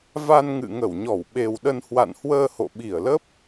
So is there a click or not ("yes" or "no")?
no